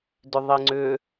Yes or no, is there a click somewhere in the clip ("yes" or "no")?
yes